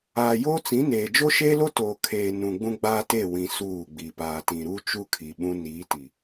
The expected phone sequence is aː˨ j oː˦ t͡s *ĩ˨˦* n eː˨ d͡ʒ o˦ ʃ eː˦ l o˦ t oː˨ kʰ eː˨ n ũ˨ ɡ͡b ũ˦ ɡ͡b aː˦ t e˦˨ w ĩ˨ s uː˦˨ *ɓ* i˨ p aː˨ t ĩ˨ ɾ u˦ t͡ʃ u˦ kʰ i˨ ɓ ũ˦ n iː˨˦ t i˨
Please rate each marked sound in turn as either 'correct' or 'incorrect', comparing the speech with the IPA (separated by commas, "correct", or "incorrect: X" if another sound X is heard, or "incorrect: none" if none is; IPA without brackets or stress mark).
correct, incorrect: ɡ͡b